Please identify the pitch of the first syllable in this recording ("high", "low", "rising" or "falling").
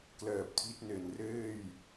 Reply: low